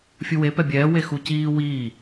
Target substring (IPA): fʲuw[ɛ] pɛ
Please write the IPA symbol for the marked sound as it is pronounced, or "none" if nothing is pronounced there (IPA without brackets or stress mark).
e